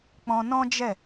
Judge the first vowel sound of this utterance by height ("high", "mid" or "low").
mid